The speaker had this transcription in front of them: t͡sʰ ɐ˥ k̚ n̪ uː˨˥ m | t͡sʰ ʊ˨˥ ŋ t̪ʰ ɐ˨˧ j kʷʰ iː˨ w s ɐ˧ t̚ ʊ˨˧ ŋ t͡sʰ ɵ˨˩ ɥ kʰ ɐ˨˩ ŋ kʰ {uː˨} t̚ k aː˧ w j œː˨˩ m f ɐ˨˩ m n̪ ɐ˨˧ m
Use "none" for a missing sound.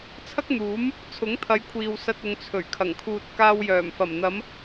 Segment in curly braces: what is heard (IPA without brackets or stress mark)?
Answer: uː˨